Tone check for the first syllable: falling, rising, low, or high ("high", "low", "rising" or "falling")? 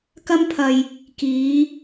high